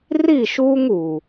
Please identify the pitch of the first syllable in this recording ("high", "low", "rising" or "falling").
falling